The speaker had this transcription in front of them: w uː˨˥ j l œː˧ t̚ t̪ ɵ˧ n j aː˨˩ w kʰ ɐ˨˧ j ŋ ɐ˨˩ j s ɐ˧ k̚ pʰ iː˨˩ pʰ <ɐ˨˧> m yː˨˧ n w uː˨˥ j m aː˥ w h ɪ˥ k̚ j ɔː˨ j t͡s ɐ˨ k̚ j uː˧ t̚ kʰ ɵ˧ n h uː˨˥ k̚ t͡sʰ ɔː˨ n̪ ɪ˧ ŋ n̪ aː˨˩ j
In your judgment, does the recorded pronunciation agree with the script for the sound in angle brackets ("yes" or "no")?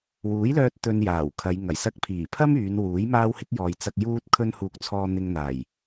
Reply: no